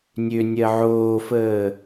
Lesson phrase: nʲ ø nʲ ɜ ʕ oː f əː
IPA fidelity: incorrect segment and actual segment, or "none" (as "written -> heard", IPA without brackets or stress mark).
none